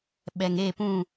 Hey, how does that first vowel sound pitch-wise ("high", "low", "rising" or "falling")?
low